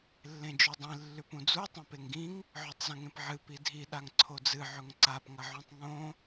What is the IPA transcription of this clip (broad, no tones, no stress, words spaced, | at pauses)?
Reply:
lːẽd͡ʒʉdˤĩ lːʉpũd͡zu tˤẽpeŋɡĩŋ | ʕɵtˤzɐ̃ŋẽpʕɨ pidʱi ɗaŋǀʰod͡zɨ ʕɵŋǀap ŋɐʕũtˤŋõ